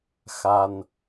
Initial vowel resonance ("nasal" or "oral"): oral